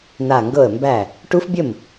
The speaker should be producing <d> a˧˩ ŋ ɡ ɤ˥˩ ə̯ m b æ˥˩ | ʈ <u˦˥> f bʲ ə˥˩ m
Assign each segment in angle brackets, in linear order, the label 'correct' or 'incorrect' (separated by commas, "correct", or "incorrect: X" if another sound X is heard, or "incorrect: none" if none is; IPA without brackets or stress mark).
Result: incorrect: n, correct